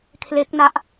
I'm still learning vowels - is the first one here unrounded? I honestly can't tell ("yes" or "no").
yes